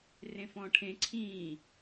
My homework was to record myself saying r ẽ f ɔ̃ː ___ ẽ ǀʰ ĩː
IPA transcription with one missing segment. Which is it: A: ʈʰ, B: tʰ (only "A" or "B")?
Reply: A